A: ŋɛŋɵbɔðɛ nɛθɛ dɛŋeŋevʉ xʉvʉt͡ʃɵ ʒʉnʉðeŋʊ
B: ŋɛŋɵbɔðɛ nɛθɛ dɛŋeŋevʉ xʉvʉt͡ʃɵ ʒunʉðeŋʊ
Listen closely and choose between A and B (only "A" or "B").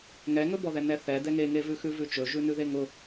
A